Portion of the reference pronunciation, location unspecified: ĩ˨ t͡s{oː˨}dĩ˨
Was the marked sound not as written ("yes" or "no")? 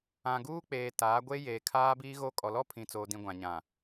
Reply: no